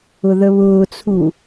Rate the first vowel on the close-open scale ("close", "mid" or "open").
close